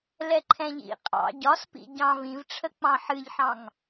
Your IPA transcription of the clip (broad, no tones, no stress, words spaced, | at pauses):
lɛǃʰɛ̃ʎḭ qʼɑ̰ ɟɒspḭ ɟɑ̃v ĩvʈ͡ʂʰə k͡pɑ̃ħɨʎħɑ̃ŋ